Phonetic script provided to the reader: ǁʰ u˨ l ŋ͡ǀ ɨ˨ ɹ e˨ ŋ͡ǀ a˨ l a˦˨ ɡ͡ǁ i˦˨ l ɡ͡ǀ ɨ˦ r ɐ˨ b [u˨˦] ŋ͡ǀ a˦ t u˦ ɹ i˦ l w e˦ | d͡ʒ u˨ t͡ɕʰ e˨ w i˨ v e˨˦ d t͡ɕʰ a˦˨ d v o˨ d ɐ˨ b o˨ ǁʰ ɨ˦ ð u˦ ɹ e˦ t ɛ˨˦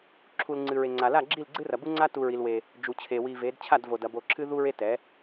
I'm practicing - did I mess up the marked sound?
yes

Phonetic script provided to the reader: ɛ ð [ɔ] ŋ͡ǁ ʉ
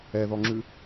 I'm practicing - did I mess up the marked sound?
no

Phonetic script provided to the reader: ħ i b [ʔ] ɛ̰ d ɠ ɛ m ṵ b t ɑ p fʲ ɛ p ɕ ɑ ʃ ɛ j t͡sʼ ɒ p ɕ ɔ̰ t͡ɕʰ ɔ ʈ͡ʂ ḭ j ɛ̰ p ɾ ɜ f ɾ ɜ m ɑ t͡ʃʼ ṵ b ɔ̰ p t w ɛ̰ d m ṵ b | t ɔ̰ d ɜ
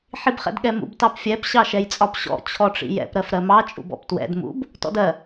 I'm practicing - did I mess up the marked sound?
yes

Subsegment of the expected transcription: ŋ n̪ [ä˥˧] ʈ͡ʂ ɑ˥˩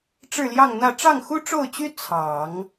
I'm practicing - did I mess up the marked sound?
no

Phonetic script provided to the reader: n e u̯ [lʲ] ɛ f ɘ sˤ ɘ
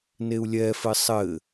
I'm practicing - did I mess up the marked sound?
no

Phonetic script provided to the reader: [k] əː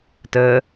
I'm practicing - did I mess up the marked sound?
yes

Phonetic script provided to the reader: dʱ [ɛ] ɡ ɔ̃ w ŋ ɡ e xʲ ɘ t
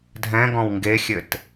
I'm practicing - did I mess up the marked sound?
yes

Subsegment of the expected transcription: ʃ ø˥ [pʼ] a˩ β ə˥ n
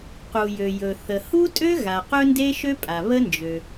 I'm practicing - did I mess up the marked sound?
no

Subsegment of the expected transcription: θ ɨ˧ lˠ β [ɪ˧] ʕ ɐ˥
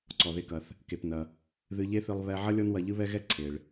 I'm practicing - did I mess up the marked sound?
yes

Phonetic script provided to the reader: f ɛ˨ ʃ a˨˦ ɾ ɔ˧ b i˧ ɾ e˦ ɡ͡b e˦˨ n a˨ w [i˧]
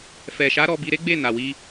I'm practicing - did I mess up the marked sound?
no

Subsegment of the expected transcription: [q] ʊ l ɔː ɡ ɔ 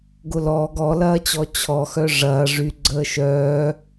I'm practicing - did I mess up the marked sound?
yes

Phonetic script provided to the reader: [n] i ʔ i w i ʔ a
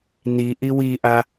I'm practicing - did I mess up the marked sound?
no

